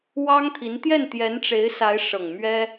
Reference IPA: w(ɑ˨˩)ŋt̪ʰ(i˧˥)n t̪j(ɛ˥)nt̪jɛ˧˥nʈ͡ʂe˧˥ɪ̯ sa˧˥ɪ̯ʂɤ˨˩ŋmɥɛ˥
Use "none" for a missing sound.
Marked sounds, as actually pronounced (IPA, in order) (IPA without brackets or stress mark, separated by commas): ɑ˥, i˧˥, ɛ˥˩